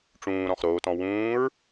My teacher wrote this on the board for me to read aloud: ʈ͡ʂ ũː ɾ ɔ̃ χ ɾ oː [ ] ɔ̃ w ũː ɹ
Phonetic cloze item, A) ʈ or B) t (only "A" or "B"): B